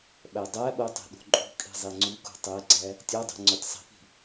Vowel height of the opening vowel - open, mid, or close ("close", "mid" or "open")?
open